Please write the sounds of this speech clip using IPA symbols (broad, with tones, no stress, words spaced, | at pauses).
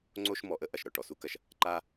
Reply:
ŋ͡ǀo˦ʃ mɔ˨ʔə˥ʔɐ˩ʃ ɾɔ˩ʈɔ˩ su˦kɐ˨ʃ | ǃa˦